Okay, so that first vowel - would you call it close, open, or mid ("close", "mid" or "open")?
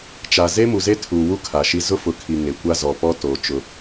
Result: open